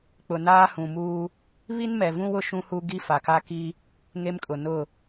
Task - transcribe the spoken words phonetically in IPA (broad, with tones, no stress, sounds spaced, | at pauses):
k͡p ʊ˨ n aː˦ h ũ˨ m uː˦ | β i˦ n m ɛ˨ v ũ˦ w ʊ˦ ʃ ũ˦ h u˦ ɡ i˦ f a˨ k a˦ k i˦ | ŋ e˦ m kʼ ʊ˨ n ʊ˦˨